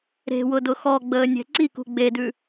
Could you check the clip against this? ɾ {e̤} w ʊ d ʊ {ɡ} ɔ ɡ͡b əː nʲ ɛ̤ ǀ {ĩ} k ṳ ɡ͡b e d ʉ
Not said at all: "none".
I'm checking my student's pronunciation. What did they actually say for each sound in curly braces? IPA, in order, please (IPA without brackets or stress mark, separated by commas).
e̤, x, i